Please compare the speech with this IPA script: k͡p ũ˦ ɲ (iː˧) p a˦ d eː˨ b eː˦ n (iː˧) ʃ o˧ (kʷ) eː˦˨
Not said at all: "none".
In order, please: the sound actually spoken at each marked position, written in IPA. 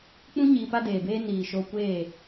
iː˧, iː˨, kʷ

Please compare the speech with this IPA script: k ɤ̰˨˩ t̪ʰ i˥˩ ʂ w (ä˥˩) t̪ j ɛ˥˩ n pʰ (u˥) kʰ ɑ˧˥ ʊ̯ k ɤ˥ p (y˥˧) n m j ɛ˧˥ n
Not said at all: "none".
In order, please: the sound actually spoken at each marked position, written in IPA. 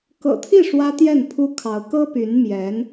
ä˥, u˥, y˧˥

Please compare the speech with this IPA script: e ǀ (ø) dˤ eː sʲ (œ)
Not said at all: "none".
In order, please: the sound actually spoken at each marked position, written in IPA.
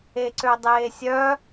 ø, œ

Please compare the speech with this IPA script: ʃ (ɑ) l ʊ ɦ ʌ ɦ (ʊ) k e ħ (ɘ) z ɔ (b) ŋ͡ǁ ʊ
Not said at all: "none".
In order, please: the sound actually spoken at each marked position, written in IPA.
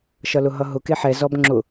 ʌ, ʊ, ɛ, b

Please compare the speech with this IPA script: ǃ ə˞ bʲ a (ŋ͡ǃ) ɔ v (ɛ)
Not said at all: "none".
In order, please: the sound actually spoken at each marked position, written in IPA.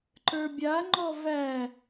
ŋ͡ǃ, æ

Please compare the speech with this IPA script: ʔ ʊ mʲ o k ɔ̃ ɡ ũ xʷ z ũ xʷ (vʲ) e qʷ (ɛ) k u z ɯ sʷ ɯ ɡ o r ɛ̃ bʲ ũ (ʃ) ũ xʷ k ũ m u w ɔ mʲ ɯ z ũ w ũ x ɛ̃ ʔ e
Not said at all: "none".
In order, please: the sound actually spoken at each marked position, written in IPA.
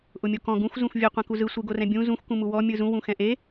vʲ, ɛ̃, z

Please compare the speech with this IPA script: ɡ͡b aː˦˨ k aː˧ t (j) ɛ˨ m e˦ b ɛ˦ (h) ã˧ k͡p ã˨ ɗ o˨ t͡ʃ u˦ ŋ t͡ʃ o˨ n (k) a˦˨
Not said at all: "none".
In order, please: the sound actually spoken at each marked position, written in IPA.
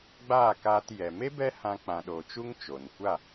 j, h, kʷ

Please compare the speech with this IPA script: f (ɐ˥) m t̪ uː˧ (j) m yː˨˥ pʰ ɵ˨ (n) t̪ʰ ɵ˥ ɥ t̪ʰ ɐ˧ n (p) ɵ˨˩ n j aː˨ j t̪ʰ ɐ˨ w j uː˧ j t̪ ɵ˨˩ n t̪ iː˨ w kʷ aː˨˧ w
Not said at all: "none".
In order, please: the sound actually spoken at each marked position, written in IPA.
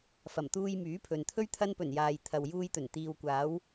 ɐ˨˩, j, n, p

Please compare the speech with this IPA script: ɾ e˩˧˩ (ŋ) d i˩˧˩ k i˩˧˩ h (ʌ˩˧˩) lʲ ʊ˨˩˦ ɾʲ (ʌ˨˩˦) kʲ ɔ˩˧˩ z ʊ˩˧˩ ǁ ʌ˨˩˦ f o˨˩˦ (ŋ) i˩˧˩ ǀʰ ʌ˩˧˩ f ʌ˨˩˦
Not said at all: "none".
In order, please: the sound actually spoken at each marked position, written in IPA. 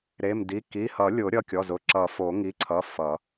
m, ʌ˨˩˦, ʌ˩˧˩, ŋ

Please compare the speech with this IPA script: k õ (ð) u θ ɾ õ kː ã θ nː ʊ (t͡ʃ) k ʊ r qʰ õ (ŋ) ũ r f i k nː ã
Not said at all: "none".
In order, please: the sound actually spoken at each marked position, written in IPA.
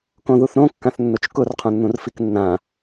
ð, t͡ʃ, nː

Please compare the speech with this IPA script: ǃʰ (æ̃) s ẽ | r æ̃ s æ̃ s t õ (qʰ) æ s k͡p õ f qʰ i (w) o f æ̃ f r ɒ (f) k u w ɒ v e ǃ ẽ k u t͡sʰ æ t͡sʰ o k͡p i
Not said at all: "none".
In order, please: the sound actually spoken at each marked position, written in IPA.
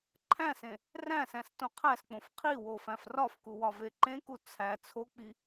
æ̃, qʰ, w, f

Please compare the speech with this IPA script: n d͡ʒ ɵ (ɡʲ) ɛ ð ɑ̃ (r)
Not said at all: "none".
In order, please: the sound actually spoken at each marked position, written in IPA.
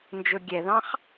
ɡʲ, χ

